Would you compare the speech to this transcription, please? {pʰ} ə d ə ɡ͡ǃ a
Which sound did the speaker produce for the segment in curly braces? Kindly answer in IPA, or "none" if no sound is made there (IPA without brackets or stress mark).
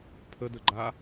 pʰ